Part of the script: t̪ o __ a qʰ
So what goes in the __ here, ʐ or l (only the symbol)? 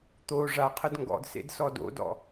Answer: ʐ